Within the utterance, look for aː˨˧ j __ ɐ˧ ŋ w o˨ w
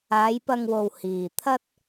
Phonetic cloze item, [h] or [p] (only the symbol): p